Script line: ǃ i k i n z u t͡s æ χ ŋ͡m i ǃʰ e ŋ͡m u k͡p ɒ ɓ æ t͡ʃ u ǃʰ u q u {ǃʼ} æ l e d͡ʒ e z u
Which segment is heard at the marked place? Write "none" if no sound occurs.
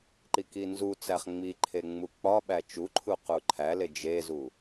ǃʰ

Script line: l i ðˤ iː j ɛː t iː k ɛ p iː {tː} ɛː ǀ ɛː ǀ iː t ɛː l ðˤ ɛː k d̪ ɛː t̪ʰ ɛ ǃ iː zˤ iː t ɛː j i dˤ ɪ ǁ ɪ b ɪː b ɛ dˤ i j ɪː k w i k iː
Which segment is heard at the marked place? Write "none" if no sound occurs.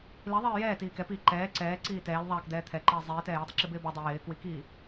ǃ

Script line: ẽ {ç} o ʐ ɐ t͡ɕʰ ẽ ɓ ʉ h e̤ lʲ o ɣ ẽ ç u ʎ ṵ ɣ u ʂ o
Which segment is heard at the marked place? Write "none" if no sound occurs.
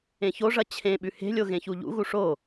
ç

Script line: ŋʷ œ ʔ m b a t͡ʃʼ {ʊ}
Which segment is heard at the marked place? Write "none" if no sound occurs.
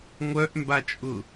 ʊ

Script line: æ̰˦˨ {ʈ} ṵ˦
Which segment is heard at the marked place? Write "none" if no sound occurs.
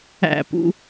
p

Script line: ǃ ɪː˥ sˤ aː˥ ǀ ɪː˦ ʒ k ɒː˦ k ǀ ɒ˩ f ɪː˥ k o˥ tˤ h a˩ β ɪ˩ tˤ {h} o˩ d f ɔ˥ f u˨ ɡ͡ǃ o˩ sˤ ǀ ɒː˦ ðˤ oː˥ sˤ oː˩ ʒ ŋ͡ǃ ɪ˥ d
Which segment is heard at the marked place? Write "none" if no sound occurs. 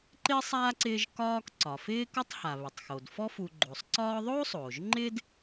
x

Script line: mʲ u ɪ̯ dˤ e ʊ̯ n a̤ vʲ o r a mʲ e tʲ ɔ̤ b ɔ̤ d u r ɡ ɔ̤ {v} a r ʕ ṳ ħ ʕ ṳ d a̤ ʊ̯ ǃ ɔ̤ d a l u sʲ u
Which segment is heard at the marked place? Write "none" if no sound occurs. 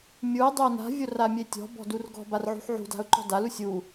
b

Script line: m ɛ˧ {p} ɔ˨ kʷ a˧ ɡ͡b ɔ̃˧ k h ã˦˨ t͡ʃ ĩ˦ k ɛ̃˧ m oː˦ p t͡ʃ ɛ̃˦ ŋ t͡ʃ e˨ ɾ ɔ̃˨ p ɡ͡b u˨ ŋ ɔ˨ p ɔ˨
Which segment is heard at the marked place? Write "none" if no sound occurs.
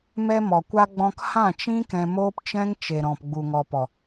m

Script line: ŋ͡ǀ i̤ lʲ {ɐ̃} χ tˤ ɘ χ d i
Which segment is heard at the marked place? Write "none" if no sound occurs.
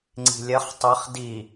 ɐ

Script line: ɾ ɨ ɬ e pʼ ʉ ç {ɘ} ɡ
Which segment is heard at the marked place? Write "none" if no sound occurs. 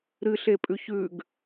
ʉ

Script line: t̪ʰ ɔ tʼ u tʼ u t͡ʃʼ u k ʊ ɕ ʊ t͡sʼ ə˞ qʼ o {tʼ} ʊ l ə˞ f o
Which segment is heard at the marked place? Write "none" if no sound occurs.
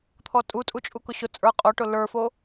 ʈ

